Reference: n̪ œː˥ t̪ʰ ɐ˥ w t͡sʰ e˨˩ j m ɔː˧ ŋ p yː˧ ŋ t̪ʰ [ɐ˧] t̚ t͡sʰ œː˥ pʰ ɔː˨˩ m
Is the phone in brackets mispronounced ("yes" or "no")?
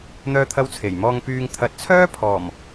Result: yes